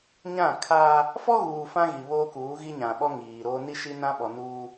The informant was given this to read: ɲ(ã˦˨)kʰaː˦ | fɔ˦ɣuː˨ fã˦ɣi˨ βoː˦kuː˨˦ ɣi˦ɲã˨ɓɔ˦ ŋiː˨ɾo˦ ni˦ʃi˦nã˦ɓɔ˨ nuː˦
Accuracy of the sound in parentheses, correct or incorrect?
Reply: correct